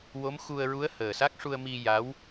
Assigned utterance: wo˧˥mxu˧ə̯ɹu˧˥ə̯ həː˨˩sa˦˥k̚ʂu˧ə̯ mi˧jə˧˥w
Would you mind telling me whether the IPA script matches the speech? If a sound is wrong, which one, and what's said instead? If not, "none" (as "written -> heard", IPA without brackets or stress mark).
ə˧˥ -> a˧˥